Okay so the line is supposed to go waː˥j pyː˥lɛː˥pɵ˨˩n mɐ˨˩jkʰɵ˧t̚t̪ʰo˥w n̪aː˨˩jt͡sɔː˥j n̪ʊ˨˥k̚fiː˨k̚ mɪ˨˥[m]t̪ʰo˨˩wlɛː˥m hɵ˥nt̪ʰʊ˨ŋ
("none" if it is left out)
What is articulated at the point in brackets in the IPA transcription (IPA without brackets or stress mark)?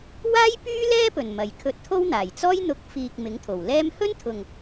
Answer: ŋ